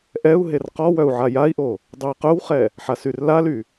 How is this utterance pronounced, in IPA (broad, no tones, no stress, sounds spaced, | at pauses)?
ʔ ɛ u̯ ɦ e r q ɔ w œ u̯ ʕ a j a i̯ ʔ o | dˤ ø i̯ q œ w χ ɛ | ħ a s y r l a l y